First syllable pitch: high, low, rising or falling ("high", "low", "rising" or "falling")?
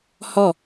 falling